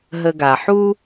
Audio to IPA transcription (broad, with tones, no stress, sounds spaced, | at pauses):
ɦ ə˨ ɡ a˩ ħ u˥